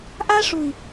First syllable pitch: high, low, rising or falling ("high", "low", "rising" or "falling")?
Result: high